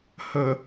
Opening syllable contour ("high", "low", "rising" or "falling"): low